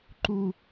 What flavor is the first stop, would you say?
click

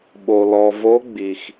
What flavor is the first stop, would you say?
implosive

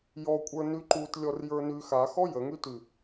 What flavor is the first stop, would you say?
ejective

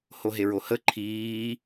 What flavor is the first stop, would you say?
click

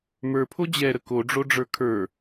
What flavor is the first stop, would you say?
aspirated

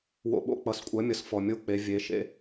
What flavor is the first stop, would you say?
implosive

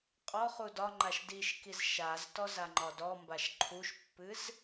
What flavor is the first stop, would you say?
ejective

